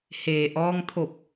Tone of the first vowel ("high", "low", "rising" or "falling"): low